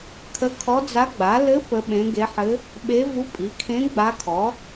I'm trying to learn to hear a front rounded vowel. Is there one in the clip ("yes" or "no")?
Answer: no